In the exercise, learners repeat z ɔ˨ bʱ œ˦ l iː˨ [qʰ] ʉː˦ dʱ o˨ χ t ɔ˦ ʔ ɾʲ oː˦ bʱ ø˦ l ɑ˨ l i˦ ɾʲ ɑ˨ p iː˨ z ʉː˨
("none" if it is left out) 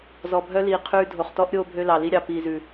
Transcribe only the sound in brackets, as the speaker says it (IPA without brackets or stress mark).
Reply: qʰ